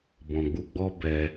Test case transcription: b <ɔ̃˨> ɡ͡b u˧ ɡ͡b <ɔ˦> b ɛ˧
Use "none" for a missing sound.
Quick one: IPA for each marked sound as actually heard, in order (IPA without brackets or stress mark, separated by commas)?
ɔ̃˨, ɔ˦